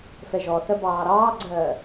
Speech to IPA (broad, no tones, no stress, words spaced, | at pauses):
fɛʒɔθɜ bɑːɾɑːɡ͡ǀɜː